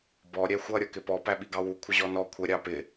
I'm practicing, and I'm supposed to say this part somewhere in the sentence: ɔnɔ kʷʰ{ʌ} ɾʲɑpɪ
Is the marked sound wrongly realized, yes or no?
yes